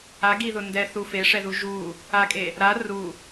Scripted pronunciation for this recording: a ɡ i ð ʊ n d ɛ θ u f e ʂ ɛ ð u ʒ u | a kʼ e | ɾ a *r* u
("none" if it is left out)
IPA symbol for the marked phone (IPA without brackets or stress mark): r